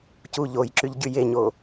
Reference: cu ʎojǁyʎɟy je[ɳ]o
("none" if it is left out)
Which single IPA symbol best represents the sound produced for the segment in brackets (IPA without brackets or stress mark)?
ɲ